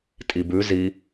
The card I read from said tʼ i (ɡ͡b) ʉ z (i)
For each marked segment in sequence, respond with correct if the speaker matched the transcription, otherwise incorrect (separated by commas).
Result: incorrect, correct